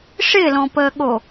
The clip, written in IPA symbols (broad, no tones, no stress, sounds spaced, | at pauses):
ʂ ɪː l ɔ̃ p əː ɠ o